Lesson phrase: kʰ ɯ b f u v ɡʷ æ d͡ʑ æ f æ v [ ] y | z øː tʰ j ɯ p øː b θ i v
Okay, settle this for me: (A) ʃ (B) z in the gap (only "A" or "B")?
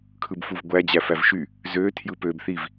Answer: A